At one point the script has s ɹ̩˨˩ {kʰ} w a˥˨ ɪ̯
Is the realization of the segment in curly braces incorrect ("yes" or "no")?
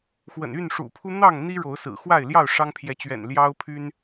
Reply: yes